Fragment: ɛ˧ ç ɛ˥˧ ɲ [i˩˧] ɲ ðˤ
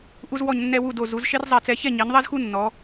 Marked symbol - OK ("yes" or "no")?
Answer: yes